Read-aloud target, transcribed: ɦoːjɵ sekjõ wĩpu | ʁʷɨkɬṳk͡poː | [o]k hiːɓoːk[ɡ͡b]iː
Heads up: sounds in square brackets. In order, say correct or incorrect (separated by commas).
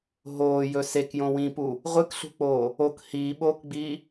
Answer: correct, correct